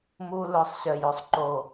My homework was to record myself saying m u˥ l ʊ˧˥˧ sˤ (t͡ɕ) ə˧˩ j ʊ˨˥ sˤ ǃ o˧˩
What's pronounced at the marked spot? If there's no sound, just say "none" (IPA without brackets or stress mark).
ɕ